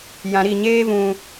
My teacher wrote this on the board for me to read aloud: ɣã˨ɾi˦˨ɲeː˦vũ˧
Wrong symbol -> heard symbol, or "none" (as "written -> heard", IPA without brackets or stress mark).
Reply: ɣ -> j